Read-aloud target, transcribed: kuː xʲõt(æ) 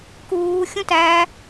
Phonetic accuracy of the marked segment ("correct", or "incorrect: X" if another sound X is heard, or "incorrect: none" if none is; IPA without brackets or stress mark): correct